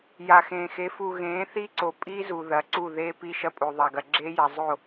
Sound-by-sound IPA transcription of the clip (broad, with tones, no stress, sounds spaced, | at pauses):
j a˨ x ẽː˨ x e˨˦ f u˨ ɣ ẽː˨˦ θ i˦ ǀ o˨ pʼ i˦ z u˨ ð ɐː˨ ǀ u˦˨ ð eː˦ p i˦ ʃ ɐ˦ pʼ o˨ ðˤ a˨ ɡ ɐ˨ ɡ͡ǁ eː˦ j a˨ zˤ o˦˨